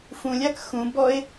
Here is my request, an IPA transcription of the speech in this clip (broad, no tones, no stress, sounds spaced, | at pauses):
f ũ lʲ a k x ũ b ɔ e̯